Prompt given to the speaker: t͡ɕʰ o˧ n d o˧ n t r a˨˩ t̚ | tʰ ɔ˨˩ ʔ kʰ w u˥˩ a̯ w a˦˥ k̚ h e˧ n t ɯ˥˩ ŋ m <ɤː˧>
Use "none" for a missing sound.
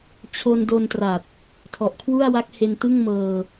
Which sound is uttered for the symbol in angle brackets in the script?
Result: ɤː˧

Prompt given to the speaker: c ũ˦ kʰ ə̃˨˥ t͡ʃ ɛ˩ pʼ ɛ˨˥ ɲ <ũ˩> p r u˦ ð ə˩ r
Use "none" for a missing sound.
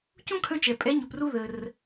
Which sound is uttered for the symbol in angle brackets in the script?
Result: u˩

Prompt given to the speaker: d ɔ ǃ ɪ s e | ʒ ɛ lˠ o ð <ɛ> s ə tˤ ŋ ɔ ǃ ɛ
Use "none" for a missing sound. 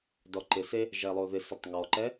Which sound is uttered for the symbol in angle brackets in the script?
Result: ɪ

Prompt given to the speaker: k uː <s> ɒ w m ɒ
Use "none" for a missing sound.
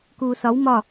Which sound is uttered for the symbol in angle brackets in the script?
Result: s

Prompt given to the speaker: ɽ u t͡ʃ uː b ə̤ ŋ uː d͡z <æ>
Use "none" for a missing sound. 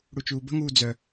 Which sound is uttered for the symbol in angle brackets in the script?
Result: œ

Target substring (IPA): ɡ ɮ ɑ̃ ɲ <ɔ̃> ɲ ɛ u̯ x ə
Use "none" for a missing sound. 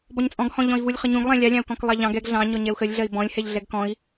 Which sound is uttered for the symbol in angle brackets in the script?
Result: ɔ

